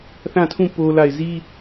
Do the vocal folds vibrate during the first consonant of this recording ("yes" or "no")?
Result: no